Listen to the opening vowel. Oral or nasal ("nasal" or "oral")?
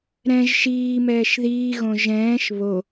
nasal